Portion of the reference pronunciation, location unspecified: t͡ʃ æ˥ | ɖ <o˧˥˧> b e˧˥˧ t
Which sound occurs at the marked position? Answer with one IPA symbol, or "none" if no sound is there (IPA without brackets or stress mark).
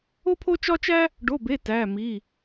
o˧˥˧